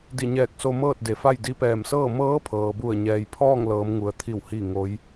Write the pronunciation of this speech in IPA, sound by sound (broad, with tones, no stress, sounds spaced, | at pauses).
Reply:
d i˧˩ ɲ ɛː˧˩ k̚ s o˧ m ɤː˥˨ t̚ d e˩˧ f a˥˨ j d i˧ p ɛː˧˩ m s ɤː˥˨ m ɤː˧˥ pʰ ɤː˩ b u˧˩ ə̯ ɲ ɛː˧ j pʰ ɔː˥˨ ŋ l ɤː˩˧ m ŋ u˩ ə̯ t̪ʰ i˧˩ w h i˥˨ ŋ o˧˥ j